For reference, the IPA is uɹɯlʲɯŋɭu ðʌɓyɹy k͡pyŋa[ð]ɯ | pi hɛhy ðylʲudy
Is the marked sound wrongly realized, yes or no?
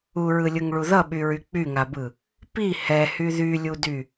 yes